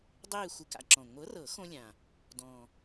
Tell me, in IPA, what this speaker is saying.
dˤeː˥˧ xʷɯ˧ka̰˧ǁɔ̃˨˩ ŋʷɤ˨˥rɤ˨˩˦xõ˧ lʲã˨˩ | dɔ̃˨˩

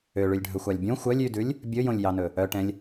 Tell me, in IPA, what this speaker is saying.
øɭʉlʲɖʱɵxʷɑlʲ bʲõ xʷœlʲ ydʉlʲ | bʲɵjõlʲjɑnɵ | œʈɛ̃lʲ

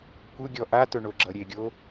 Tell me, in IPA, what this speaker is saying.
kʷɯɡʲɔ ʔatɵɳoɡ͡ǁʌ ɾʲeɡʲo

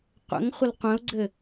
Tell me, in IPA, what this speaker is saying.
qʷə̰ŋ χʷəlqʷə̃ʊ̯ɡ͡ǀɘ

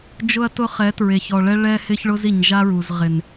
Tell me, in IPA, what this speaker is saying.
d͡ʒʊ˦ɐ̯tʊ˦χɛ˨˦tɹe˨ç ɔ˨ɭɛ˦ ɭɛ˦hɪ˦ç ɭʊ˦zi˨ɲ ʒa˦ɹu˨z ʁɪ˨n

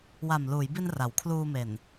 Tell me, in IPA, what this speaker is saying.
wa˨˩m luː˩˦jbi˧n ra˩˦wkʰluː˧me˨˩n

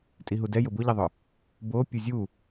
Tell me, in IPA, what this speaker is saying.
tʼiɦudɛ jʊbʊʎiðˤʊ | bo pʲuzʲu

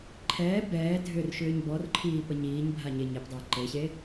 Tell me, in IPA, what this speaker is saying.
ǃʰɛː bɛː dʱʏrʃʏːɲ bɔrǃʰiː pəɲiːɲbʱa ɲeɲepdˤɛː ǃeɕe

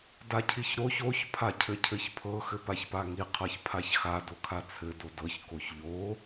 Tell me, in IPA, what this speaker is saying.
dacʰiçɾoç oç pʰacʰɘcʰɘçpʰɤ xɘpaçpaŋi qʰɤçpʰaçxa dokʰat͡sʰɘ dodɤç koçʎo

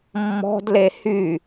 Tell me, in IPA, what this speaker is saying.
mːɔ̤dle hy

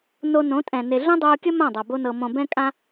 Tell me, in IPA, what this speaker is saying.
no˧nõ˨˦tʼɛ̃˨ ne˨ɮõ˦dˤoː˧kʲə˦ mã˦˨dˤa˨ bo˧nɤ˨ mõ˨bɛ̃˧kʼã˧

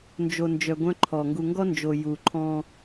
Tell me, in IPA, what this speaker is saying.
nd͡ʒo˨nd͡ʒœ˨ ɡʷœ̃˦ǃʰɔ˨ ŋɡu˨ŋɡɔ˦nd͡ʒo˨ ju˨ǃʰɔ̃˦

